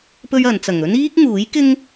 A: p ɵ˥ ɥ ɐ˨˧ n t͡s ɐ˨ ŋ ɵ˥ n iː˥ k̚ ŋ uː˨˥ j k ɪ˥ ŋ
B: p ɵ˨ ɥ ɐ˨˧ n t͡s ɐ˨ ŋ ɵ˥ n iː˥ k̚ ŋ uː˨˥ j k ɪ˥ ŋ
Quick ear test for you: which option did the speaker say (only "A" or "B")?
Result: A